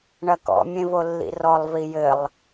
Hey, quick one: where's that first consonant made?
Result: retroflex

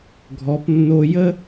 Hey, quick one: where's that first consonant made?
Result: velum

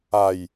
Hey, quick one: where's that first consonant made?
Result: palate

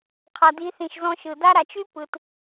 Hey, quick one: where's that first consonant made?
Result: uvula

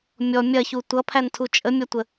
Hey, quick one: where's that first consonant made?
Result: lips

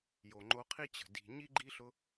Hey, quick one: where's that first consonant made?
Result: palate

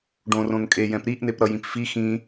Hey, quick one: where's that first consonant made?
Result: retroflex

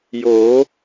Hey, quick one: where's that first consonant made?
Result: palate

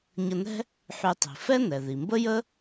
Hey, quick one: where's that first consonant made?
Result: palate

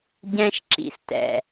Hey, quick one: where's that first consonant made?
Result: palate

